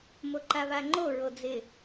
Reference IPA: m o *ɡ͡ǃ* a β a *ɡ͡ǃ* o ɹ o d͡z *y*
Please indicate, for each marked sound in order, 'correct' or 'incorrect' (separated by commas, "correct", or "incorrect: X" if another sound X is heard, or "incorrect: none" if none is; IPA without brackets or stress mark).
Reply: incorrect: ǃ, incorrect: ŋ͡ǃ, incorrect: ɪ